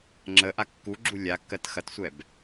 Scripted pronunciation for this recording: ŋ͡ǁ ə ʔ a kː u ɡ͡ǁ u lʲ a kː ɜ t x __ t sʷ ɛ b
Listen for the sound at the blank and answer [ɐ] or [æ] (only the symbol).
ɐ